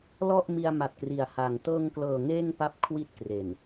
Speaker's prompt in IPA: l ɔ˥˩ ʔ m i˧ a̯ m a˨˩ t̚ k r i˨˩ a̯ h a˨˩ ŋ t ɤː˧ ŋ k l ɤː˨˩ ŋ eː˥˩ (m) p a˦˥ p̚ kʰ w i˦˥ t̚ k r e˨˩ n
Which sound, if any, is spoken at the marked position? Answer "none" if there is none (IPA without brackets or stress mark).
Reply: ŋ